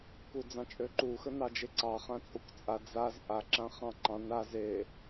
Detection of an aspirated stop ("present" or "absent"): absent